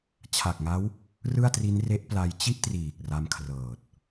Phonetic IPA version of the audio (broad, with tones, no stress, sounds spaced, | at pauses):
t͡ɕʰ a˨˩ k̚ ŋ a˦˥ w | r ɯ˥˩ a̯ t r i˦˥ n r e˦˥ ʔ p l a˧ j t͡ɕ i˥˩ ʔ t r iː˨˩ k̚ r a˦˥ m kʰ r ɤː˨˩ t̚